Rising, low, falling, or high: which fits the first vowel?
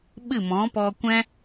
falling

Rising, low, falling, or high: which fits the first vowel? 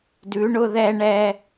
rising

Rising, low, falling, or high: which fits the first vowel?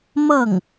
falling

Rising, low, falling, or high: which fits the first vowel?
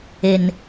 low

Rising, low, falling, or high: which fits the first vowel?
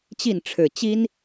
falling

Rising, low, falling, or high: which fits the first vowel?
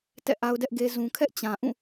falling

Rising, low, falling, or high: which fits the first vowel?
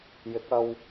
rising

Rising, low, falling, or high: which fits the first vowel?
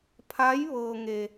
rising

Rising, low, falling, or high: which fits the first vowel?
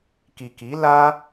low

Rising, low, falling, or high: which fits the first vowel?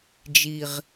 low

